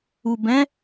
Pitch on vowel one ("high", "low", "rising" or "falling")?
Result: low